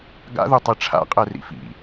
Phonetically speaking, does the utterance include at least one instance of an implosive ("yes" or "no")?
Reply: no